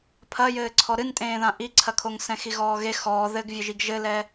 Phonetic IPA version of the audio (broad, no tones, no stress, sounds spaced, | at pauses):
pʰ ɐ j ɘː ǀʰ ɔ ɾ ɨ n tʼ ẽː ð ã ʔ i ǀʰ ɐ kʰ o ŋ s ɛ̃ x i ɣ ɔː ɣ e x ɔː ð ɘ ɡ vʲ ɘ ʒ i ɡ ʒ ɘ l ɛ